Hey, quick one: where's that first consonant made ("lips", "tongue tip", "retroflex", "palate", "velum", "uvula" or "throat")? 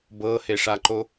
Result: lips